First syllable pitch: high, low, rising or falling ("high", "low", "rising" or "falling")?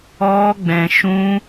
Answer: high